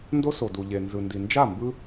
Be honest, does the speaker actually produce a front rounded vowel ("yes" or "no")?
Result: no